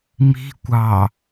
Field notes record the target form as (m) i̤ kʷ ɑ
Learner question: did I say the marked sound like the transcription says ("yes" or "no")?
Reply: yes